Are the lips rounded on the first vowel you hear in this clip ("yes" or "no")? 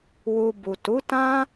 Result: yes